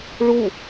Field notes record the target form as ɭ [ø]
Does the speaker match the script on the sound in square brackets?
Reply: no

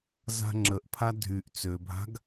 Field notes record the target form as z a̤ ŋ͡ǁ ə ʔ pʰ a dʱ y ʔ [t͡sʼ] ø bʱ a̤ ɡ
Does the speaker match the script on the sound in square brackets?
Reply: no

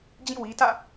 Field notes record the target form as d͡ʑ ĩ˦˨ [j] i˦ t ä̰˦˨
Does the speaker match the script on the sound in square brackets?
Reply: no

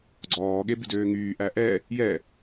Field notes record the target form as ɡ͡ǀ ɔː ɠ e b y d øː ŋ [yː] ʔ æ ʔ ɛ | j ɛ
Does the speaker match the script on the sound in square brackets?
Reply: yes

